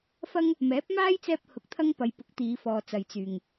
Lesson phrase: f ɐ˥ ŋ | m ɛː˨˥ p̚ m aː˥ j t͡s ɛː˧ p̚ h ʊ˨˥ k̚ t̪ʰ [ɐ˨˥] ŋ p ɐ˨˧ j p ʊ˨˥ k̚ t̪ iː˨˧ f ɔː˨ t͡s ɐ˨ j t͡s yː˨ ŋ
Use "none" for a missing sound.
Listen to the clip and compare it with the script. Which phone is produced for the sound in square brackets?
ɐ˥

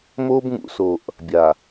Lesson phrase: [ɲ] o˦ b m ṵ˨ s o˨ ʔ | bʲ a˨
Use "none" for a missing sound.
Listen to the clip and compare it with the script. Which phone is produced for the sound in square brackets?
m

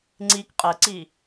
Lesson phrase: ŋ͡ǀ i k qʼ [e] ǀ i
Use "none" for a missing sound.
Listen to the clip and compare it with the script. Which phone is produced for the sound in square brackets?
ɘ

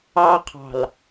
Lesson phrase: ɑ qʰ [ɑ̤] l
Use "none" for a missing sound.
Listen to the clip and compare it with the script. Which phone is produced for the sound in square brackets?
ɑ̤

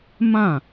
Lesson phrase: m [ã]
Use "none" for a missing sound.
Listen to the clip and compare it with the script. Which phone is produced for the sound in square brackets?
ã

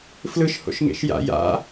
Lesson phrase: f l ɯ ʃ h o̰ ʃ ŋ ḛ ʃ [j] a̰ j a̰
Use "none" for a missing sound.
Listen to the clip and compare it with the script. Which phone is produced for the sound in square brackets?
j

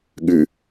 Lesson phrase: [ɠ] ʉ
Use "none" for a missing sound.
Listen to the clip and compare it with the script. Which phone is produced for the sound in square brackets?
ɠ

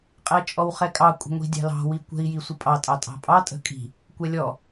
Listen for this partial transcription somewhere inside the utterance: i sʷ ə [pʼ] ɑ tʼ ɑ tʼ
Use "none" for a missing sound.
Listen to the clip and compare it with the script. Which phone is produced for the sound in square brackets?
pʼ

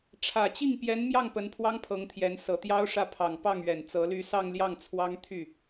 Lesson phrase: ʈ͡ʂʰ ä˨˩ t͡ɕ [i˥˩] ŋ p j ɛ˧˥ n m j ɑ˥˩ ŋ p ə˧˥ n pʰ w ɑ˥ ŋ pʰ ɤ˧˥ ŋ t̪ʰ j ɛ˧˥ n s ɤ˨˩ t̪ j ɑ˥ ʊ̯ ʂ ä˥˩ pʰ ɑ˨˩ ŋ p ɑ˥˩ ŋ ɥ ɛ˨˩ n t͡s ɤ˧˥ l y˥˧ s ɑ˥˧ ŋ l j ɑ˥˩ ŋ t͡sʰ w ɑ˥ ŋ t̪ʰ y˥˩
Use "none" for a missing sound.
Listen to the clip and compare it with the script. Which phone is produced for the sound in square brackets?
i˥˩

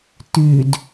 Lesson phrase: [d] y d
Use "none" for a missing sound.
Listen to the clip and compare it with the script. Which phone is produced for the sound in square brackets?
t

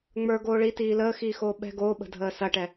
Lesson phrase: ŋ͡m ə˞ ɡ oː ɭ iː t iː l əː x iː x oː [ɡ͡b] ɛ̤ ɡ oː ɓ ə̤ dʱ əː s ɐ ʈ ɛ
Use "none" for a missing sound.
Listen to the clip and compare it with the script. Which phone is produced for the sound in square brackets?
ɓ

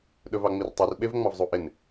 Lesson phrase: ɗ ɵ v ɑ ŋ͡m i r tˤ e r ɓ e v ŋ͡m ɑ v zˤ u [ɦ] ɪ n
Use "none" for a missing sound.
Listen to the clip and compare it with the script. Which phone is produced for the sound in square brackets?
ʔ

